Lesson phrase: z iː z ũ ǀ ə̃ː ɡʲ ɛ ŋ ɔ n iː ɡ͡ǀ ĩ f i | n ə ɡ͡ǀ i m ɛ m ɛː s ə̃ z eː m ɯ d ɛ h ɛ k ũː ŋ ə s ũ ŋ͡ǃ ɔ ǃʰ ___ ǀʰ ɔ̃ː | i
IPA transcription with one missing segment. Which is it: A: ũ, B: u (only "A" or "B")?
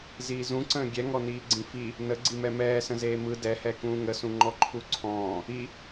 B